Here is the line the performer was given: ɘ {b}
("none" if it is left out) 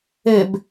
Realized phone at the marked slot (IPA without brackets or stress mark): b